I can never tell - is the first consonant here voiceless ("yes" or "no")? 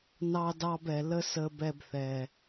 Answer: no